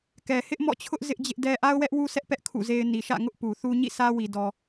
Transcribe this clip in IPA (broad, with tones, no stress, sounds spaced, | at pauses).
k ɛ˨ h ɪ˦ ʔ m ɔ̰˦˨ t͡ɕʰ ʊ˦ ʔ z ɪ˦ ʔ d͡ʑ ɪ˦ ʔ d ɛ˦ ʔ a˦ ʊ̯ w ɛ˦ ʔ w u˦ sʰ ɛ˦ ʔ p ɛ˦ ʔ kʰ ṵ˦˨ z e˦ ɪ̯ n i˨ ʃ ä̰˦˨ ŋ ʊ˦ ʔ p u˨ θ u˦ ɲ ḭ˦˨ sʰ ä˦ w i˨ d ɔ˨